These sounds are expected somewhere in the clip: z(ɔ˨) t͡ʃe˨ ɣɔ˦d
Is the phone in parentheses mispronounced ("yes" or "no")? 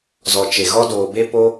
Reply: no